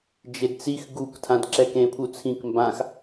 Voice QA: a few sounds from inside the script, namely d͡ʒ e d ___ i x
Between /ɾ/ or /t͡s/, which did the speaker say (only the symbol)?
t͡s